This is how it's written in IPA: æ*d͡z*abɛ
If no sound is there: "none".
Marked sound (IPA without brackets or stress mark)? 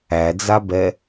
d͡z